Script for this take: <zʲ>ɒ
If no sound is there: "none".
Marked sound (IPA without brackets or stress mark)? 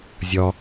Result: zʲ